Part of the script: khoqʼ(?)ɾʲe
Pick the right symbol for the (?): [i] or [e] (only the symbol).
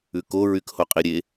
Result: i